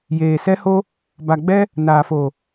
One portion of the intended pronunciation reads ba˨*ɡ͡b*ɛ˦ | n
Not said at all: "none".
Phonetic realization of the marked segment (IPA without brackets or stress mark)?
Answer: ɡ͡b